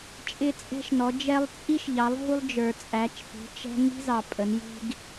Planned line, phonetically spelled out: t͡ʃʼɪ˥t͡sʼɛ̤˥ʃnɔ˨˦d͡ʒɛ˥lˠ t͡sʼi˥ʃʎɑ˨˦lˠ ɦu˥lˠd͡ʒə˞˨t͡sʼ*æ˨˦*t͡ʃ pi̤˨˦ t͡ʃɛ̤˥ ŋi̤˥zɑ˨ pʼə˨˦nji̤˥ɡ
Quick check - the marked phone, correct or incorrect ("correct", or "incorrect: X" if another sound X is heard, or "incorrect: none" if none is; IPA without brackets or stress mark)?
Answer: correct